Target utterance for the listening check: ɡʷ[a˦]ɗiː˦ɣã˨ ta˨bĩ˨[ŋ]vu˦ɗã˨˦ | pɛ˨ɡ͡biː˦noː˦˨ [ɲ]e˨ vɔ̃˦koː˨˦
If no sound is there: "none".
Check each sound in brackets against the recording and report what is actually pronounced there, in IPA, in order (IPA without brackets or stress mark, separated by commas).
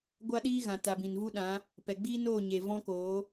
a˦, n, ɲ